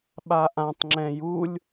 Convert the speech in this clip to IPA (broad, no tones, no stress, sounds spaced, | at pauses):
ɓ a ʔ ã tˤ ŋ͡ǁ ɛ̃ j u lʲ